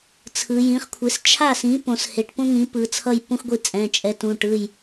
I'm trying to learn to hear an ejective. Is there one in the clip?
yes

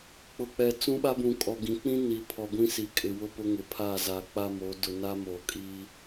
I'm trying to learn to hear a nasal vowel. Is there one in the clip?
yes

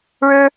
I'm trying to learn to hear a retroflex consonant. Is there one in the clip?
yes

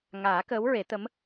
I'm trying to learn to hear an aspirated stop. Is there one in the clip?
no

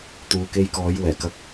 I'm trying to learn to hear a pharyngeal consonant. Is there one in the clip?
no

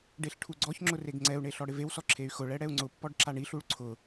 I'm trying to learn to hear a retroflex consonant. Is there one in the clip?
yes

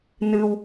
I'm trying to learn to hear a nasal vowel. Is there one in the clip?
no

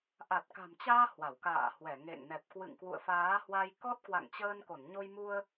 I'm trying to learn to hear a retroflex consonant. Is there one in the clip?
no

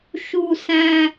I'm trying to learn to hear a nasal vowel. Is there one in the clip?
yes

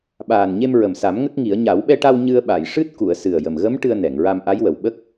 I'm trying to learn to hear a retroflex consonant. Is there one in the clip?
yes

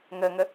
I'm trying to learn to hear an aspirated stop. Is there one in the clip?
no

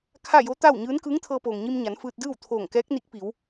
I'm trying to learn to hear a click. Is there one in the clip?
no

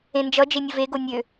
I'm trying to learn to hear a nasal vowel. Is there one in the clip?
yes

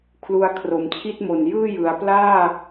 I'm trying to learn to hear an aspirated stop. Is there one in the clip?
yes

